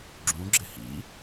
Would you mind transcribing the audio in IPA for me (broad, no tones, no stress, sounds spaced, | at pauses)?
ɡ͡ǁ ũ ɡ͡ǁ ɪ h ḭ